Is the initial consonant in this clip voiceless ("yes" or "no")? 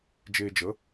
no